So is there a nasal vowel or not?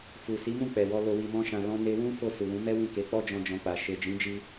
yes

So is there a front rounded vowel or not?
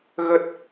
no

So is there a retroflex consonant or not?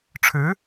yes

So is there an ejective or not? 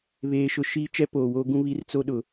no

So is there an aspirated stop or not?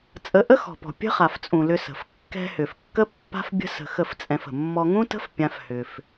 no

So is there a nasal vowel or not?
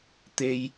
no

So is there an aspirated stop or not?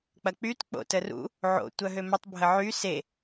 no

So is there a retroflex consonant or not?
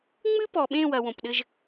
no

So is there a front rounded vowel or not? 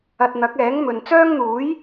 yes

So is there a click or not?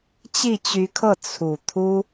no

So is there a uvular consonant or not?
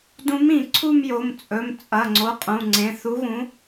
yes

